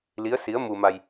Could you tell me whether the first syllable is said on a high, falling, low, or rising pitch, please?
rising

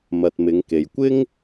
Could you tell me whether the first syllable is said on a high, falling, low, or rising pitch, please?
low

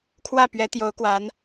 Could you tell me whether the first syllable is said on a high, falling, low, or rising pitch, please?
falling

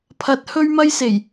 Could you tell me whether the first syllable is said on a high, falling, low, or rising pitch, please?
rising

